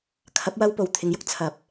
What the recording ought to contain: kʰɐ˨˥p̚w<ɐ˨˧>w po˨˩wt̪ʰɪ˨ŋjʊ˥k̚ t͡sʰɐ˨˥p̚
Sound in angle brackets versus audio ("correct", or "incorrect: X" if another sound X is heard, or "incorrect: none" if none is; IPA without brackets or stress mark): incorrect: ɐ˧